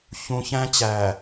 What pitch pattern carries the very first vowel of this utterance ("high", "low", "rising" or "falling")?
low